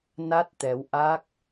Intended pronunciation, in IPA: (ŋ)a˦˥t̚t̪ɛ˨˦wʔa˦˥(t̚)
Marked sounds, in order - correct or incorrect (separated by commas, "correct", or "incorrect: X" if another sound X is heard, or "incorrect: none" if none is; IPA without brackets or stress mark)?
incorrect: n, incorrect: k̚